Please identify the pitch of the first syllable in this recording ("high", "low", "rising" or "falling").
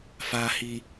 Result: low